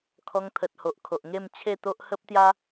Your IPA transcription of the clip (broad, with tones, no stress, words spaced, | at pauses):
kʰɔ˧ŋt̪ʰə˨t̚ ho˨ʔkʰo˨ʔŋe˥˧m t͡ɕʰe˥˧t̪o˦ʔ hə˦p̚t̪ja˦